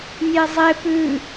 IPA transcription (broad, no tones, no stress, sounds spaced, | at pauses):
nʲ e zˤ e p ʉ